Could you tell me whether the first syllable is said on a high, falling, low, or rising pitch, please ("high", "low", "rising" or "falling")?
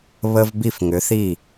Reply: high